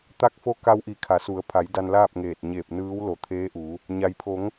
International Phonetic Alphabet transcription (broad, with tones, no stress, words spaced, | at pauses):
t̪a˧k̚fo˧ ka˧w ʔi˧˩kʰa˩˧su˩˧ə̯ pʰa˩˧j da˧nlaː˥˨p̚ŋeː˧˩t̚ ɲeː˧˩p̚nɯː˧˥wlo˧˩ t̪ʰeː˧˥ʔu˩˧ | ɲa˩jpʰo˩˧ŋ